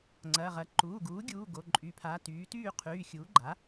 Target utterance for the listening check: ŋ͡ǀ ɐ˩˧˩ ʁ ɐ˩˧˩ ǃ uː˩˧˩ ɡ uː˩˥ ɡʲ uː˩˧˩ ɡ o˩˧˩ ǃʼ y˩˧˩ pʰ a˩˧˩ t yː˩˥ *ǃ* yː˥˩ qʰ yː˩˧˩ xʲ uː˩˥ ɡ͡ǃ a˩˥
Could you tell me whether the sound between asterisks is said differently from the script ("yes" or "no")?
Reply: yes